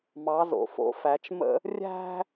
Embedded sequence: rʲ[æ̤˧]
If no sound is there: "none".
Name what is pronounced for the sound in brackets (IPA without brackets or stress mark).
æ̤˧